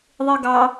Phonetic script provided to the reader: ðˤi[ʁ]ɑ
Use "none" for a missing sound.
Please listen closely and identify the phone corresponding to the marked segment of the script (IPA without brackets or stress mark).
ɡ